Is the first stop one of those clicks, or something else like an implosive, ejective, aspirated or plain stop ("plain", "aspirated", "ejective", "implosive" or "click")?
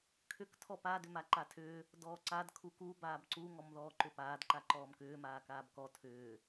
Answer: aspirated